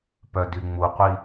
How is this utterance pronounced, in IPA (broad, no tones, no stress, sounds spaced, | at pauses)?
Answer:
p œ d y ŋ͡m u qʷ i